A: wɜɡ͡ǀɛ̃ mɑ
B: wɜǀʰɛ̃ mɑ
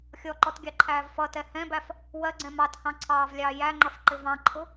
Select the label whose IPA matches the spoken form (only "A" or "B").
A